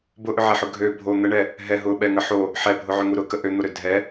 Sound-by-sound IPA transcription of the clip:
bʊʔʏʕɛħʊ ɡʱø bʱo n̪əɳɛ | ɦɛ ɦʊɓɛŋə ħo | ħɛbʱʊʕøŋu ɾʊkə ʔøn̪oɾø dʱɛ

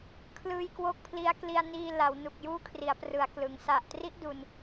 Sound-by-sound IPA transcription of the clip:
kʰlɯː˧jkwo˦˥k̚pʰli˦˥a̯ kli˧a̯ niː˧ la˩˦wnu˨˩k̚ juː˦˥kʰri˩˦a̯prɯ˩˦a̯ klɯ˩˦ŋ sa˨˩ʔtri˦˥ʔ du˧n

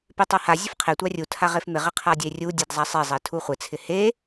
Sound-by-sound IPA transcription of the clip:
pɪtˤaha zʲʊfqʰe tʷarʲu tʰaʁefmɪ ʁɪqʰadʲerʲu dʲɛdzˤasˤe zˤɛtʰuχʷɪ t͡sʰɪhe

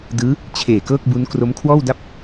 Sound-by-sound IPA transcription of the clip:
dɯː˦˥ | t͡ɕʰeː˨˩ kɤː˥˩k̚bu˦˥n kro˦˥mkʰwɔː˥˩wda˥˩p̚

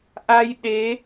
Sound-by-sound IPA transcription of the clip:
ʔa˧j ɗe˧˥

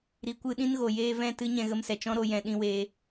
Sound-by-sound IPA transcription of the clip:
ɾi˨kʷɨ˧ ɗĩ˦nɣo˨ jeː˧vɛ̃˦˨ tɨ˦ɲɛ̃˧ ɣə˧msɛ˨ t͡ʃɔ̃˦ ɾo˧ jɛ̃˧ ɗĩ˧weː˧

